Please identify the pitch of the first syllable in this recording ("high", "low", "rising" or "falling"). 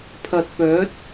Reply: low